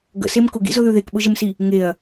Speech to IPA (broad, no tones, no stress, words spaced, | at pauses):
ɡə̰sem kʊɡḭzʊðʉ ðekɓʊʒəmsi | ŋeɐ̯